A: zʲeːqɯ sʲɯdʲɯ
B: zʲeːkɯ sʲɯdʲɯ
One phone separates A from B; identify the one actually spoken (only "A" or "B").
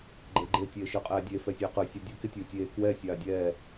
A